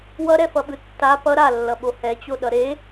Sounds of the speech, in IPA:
wʌɾɛfʌɓɯ tːa pʌ ɾalːʌɓo hɛt͡ɕoɗʌ ɾe

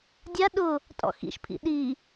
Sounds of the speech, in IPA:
dʲa ɗʊ | tʼɔ̰xḭʃpʰḭ ɗi

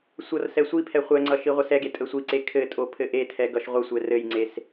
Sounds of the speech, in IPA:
sʷʌr sɛsʷipʰɛ χʷɛŋ͡ǀʌ ʃiʁʷɘsɛɡe tʼəsʷiǀe kʰɘ tʼopʰɘʔetʰɛ ɡʌʃʁʷəsʷɛ rɘjŋ͡ǀes

